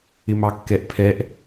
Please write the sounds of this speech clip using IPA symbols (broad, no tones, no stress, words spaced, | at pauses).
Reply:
ɪmɑkːɛʔpʰɛʔ